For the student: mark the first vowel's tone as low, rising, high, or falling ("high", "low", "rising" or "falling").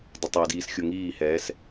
low